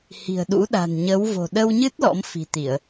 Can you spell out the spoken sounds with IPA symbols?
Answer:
hi̤˨˩ə̯ɗṵ˧˥ ɗa̤˨˩nɲə˨˦wvo̤˨˩ ɗə˧wɲɨ˦˥t̚ lɔ̰˧˥mfi̤˨˩t̪i˧˩˨ə̯

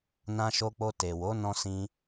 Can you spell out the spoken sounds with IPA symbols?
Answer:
nã˧ʃo˧k͡po˧ te˨wo˨˦nɔ̃˧sĩ˧

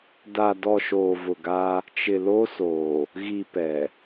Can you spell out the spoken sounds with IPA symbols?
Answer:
da˨dɔ˨ ʃoː˨vʊ˨ɡa˦ | t͡ʃɪ˨lo˦ soː˨ | ɣi˨ pɛ˨

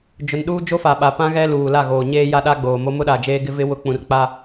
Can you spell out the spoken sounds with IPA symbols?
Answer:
d͡ʒʊ˨n ɗuː˦d͡ʒo˦fa˨ ɓa˨ pã˦ ɣɛ˦ luː˨la˦˨ɣoː˨ɲeː˦ ja˦ɗa˦ɡ͡boː˨mo˦ mʊ˦ɗa˨ d͡ʒeː˦ɡɪ˦vɪ˦ wʊ˦k͡pũ˨r k͡pa˦

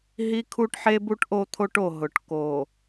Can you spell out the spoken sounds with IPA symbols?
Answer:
ɦi˦kʰu˦ʈħe˦bu˦ʈ ʔo˦t̪ʰo˦ʈo˨ ɦʊ˨ʈ ko˨

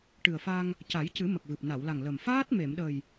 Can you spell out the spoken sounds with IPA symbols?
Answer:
ʈɨ˨˩ə̯fa˧ŋ | ca˨˩˦j cɨ˨˩˦mə˨˩k̚vɨ˨˩p̚ na˨˩˨wla˨˩ŋ lə˨˩mfaː˦˥t̚ me˨˩˨mɗə˨˩j

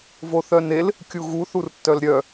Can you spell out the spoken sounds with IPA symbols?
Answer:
voθœnel | kʲuɣu θurtːœlɾʲœ

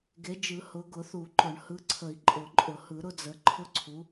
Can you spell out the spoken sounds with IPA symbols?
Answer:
ɡe˨˦d͡ʒɯ˨˩˦hʊ˨˦ ɡʊ˨˩˦θu˨˩˦ǃʊ˨˩˦ɳ hɯ˨˦ǀʰə˨˩˦i̯ ǃʼʊ˨˩˦ǃʼʊ˨˩˦hɯ˨˩˦ ɾʊ˦d͡zə˨˦ǃʰʊ˦ ǀʰu˨˦

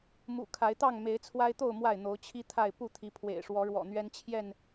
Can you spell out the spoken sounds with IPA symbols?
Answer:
mṵ˨˩kʰa˨˦ɪ̯t̪ɑ˥˨ŋ me˨˦ɪ̯t͡sʰwa˦ɪ̯t̪o˥˨ʊ̯ mwa˥˨ɪ̯ n̪o˨˦ʊ̯ t͡ɕʰi˦t̪ʰa˥˨ɪ̯ pu˥˨t̪ʰi˨˦ pʰwḛ˨˩ɪ̯ʂwɔ˨˦ɻwɔ̰˨˩ n̪ɥɛ˦nt͡ɕʰjɛ˥˨n

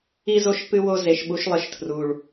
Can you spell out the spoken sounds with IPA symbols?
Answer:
i˧zo˧ʃ pɨ˧wo˧ ze˩˧ʃɓu˩˧ʃlˠɨ˨˩ʃ tʰru˨˩ɭ

